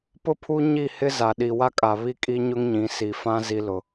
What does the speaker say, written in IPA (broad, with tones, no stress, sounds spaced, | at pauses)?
p ʊ˦ pʰ u˦ ɲ i˦˨ h ɪ˦ z a˨ ɗ i˨ w a˦ kʼ a˨ β i˦ kʼ i˦ ɲ ʊ˦ ŋ ɲ ĩ˨˦ s i˨ f ã˦ z i˦ l ʊ˦